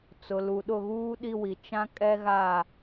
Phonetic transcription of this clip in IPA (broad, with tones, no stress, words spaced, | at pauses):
t͡sʊ˨lu˨ɗʊ˦˨ɣuː˦ ɗi˦wi˨ t͡ʃã˦ kʼɛ˦ɣa˦˨